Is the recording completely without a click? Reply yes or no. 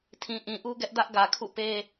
yes